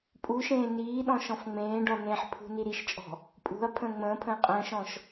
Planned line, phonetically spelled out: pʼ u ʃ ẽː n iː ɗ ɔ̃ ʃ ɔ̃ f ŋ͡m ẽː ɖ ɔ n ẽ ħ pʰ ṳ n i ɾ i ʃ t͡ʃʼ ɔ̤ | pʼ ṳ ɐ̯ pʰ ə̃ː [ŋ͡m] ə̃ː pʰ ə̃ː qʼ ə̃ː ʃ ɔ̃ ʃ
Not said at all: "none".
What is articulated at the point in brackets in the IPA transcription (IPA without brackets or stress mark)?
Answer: ŋ͡m